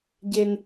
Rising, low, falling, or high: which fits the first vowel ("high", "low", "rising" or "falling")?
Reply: high